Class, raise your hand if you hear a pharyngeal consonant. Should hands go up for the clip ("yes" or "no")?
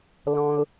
no